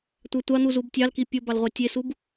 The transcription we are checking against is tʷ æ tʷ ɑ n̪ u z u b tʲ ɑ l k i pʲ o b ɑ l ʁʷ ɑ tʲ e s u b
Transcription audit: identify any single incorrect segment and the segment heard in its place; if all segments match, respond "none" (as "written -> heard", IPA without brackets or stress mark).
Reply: none